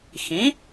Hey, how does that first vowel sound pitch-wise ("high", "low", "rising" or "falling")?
rising